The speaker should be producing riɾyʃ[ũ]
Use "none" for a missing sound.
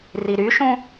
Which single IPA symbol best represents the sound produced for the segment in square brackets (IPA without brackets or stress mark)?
ũ